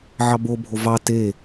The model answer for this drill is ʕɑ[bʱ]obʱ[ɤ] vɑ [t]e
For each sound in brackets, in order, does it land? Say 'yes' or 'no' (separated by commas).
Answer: no, no, yes